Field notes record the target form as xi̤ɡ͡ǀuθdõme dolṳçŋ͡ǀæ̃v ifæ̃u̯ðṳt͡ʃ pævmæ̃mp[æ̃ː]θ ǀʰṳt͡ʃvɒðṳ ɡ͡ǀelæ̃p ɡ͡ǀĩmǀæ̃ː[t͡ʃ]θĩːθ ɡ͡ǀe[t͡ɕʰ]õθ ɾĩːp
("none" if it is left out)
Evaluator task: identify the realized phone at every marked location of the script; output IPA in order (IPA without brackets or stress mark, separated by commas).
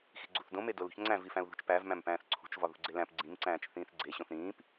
æ̃ː, t͡ʃ, ɕ